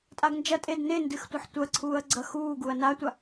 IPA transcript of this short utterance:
tʼ a ɡ n d͡ʒ ɐ tʼ e d n e n d ɨ x tʷ ɐ ħ tʷ ɐ ǀʰ uː ɐ̯ ɡ͡ǀ ɐ x uː ɡ u ɐ̯ n a tʷ a

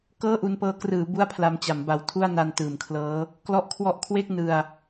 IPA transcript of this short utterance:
k ɤː˥˩ ʔ u˧ n p ɤː˦˥ k r ɯː˩˦ b u˥˩ a̯ pʰ l a˧ m t͡ɕ a˩˦ m b a˨˩ w tʰ u˥˩ a̯ n a˧ n t ɯː˩˦ m kʰ l ɤː˦˥ | k l ɔ˦˥ ʔ kʰ w ɔ˦˥ ʔ kʰ w e˥˩ k̚ n ɯ˧ a̯

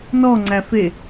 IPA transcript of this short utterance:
n ɔ ŋ͡ǀ æ f e

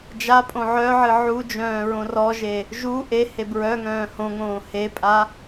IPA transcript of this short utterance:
d͡ʒ a pʼ õ ʕ œ ʕ ɨ ʕ u d͡ʒ œ̃ː ɹ õ r ɔ ʒ e | ʒ u ʔ e h e b ɹ œ ŋ œ̃ː h õ ŋ õː h e pʼ a

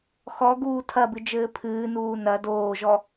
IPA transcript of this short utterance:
x ɔ ɡ uː tʰ ɐ b ɨ d͡ʒ ɘː pʰ ɨː n uː n ɐ d oː ʒ ɔ

